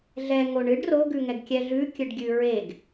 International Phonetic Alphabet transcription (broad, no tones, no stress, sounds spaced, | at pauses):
ɮ ɛ ŋ o ɳ ɨ ɖ r o ɡ ʉ ŋ ɛ ɡ kʲ ɛ ɮ ʉ kʲ ɨ ɖ ɡʲ ʉ ɹ e ɡ